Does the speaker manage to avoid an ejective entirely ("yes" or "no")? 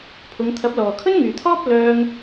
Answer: yes